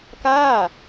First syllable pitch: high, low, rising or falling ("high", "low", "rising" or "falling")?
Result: falling